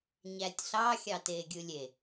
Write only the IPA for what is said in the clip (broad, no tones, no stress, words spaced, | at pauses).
ɲætʲɬɑ xʲɑteːɡʲɯlʲe